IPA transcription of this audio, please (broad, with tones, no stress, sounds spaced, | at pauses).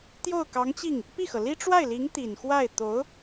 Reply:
t̪ j o˥˩ ʊ̯ k ɑ˧˥ ŋ t͡ɕ i˥˩ ŋ | p i˥˩ x ɤ˩ l i˥ ʈ͡ʂ w a˥˩ ɪ̯ l i˧˥ ŋ t̪ i˨˩ n x w a˥˩ ɪ̯ t̪ o˧˥ ʊ̯